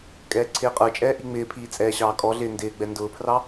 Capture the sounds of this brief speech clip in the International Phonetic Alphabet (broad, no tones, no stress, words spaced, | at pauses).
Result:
kʼɛːǀʰɪːqʼə˞t͡ʃʼɛː ʔiŋ͡mɪːpʰiː t͡sʼɛːɕɑːkʼɔɮɪː ndɪːɡ͡bɛ ndʊːpʰrɑ